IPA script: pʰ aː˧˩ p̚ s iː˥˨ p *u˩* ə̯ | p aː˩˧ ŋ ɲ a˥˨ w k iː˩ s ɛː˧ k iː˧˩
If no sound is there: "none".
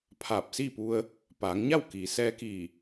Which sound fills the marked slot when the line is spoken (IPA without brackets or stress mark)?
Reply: u˧